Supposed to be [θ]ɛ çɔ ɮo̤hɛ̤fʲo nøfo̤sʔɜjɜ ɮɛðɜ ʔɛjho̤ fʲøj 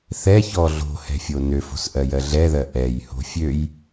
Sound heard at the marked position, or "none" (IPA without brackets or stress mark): θ